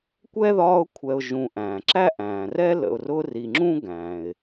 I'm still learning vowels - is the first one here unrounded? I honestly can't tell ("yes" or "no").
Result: yes